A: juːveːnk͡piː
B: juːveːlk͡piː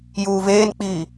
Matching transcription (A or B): A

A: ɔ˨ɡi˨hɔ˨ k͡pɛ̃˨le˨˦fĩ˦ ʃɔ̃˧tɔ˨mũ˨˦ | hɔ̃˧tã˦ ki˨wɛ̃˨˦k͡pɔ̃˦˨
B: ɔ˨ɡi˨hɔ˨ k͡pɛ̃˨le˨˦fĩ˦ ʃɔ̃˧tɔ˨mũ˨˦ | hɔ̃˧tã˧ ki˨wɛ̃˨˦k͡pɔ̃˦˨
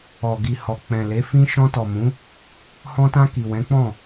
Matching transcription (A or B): B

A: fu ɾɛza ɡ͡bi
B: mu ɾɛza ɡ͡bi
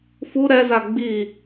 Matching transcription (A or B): A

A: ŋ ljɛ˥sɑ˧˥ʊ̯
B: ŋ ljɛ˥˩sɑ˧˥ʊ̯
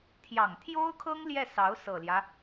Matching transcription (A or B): B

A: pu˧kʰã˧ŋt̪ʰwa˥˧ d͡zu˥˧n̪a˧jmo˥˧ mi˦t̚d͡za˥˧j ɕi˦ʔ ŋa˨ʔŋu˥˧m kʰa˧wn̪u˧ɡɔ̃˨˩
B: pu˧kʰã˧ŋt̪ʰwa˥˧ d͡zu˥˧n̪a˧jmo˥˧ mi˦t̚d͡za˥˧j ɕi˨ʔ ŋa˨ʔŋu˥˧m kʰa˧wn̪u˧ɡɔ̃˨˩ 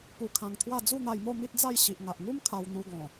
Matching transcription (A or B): B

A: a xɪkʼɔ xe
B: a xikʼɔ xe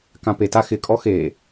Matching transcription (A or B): A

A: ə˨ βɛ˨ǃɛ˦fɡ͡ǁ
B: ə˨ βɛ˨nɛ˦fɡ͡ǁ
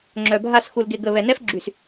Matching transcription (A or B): B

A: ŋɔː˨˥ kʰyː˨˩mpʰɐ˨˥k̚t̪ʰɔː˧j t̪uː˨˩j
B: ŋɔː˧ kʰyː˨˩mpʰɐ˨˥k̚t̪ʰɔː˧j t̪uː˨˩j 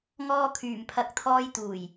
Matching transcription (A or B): B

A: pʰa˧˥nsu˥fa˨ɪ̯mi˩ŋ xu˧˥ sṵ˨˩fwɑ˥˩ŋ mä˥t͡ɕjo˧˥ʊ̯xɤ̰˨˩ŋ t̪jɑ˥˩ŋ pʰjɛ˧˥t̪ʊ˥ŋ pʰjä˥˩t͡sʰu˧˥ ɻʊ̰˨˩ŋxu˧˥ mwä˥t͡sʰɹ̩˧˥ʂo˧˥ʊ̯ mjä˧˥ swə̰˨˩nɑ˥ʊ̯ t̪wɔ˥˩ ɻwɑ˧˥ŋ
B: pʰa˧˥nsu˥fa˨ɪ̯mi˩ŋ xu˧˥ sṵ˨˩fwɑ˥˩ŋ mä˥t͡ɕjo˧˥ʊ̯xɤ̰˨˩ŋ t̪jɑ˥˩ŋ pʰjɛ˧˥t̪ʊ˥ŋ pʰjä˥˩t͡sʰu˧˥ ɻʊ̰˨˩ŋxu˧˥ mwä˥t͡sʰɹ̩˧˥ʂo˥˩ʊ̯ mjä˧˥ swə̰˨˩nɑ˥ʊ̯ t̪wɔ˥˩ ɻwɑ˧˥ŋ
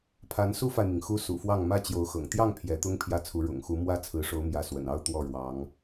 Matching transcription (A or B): A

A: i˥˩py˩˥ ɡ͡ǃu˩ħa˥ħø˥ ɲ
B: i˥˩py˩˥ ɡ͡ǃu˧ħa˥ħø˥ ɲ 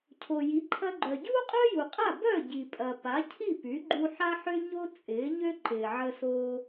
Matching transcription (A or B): B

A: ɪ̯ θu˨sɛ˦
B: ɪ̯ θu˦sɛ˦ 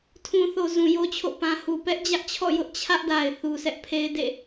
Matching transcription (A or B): A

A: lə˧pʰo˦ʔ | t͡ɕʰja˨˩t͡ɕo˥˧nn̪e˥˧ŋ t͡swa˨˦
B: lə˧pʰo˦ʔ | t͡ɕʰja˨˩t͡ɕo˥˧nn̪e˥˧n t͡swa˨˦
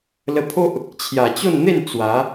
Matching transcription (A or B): B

